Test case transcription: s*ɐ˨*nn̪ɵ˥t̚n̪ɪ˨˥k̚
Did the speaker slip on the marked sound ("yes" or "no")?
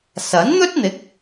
yes